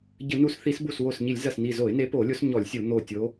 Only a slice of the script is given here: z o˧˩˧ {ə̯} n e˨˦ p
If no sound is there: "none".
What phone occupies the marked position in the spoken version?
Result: ɪ̯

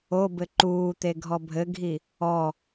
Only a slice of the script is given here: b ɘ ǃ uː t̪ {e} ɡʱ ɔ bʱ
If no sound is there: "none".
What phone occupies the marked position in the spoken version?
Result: e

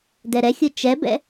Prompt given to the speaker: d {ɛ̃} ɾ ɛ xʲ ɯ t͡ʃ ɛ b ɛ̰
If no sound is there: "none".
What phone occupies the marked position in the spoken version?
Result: ɛ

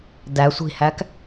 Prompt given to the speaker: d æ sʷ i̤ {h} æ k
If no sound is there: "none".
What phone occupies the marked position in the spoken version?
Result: h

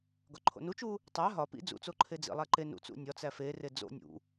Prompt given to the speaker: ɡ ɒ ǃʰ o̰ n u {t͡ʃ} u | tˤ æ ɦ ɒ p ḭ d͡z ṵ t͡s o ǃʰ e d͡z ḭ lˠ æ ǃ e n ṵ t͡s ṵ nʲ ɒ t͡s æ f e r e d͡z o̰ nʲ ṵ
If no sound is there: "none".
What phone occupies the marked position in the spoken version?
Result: t͡ʃ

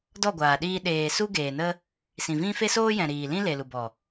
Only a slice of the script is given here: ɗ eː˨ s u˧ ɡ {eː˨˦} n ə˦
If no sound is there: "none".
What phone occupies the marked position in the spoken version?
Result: eː˨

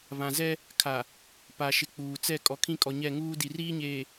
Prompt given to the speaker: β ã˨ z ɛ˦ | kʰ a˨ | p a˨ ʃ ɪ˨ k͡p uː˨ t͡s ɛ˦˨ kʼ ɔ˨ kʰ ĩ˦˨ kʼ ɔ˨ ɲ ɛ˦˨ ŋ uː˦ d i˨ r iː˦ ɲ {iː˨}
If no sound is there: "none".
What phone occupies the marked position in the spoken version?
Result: eː˨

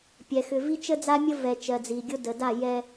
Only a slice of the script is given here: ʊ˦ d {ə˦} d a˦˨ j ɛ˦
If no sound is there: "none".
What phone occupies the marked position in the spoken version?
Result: ə˨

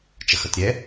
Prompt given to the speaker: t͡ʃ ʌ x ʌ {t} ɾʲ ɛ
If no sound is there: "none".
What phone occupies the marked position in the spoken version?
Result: t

